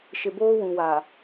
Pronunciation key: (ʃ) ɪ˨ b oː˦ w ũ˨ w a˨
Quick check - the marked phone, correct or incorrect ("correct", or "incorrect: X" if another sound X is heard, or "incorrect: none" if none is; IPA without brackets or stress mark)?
correct